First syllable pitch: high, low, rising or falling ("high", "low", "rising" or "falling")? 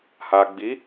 low